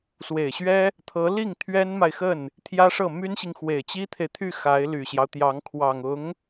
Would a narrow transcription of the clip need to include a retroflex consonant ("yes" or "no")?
yes